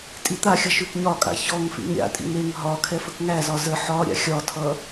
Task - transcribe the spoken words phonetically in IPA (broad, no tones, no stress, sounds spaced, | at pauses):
tʼ i t̪ a xʲ ʌ ʃ ʉ k ɲ ɒ kʼ a̰ ç ɔ ŋ f ḭ ŋ ɾʲ a̰ tʼ ḭ ŋ e ŋ ɦ ɒ kʰ ɛ f ə k ŋ æ z ɒ z ə ħ ɒ ɾʲ a̰ xʲ ɒ tʰ ʌ